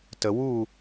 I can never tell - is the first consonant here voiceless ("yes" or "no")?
yes